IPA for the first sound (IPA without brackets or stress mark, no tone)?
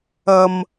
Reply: ɐ